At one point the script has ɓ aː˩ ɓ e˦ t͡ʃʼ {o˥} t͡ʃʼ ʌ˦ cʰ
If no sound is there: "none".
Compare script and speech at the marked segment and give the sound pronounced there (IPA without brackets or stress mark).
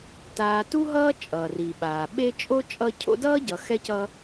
o˥